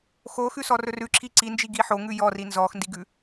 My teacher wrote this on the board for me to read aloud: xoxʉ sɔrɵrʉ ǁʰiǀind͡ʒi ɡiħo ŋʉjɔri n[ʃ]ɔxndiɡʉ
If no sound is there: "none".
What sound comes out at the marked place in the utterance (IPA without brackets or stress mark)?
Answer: z